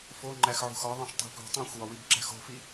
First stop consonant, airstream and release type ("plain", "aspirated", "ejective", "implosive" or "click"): click